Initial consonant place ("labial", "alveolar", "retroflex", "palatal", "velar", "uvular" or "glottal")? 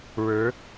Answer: retroflex